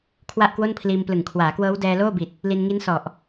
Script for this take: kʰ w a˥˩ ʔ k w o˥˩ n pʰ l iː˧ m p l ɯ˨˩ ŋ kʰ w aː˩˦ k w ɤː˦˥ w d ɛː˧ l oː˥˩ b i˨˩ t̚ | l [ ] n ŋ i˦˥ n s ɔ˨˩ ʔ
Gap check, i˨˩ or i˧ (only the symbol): i˧